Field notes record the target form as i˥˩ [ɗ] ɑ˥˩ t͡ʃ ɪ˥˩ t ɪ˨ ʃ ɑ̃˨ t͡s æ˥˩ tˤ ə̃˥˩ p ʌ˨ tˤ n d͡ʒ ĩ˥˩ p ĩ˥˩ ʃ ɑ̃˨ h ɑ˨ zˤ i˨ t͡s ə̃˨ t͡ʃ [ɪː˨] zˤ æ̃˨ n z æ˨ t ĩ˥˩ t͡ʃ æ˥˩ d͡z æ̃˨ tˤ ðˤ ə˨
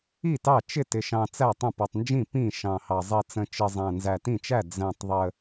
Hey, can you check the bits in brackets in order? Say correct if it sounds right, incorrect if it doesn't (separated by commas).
incorrect, incorrect